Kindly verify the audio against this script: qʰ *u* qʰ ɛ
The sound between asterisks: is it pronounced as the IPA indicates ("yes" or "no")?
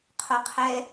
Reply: no